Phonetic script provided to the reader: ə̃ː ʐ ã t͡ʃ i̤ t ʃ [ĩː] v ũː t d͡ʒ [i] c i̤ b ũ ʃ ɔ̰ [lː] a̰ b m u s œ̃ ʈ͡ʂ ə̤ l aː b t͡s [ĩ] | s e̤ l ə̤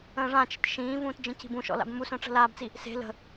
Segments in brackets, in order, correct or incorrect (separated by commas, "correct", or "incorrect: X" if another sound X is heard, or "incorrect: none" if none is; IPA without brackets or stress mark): correct, incorrect: ĩ, incorrect: l, incorrect: i